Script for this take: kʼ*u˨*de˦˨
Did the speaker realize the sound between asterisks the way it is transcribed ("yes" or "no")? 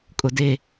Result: no